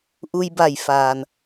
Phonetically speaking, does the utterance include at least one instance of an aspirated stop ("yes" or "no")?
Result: no